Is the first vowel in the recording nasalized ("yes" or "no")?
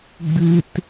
no